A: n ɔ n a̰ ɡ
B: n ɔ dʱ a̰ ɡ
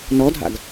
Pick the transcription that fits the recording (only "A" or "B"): B